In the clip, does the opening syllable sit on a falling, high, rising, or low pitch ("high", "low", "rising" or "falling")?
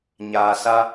low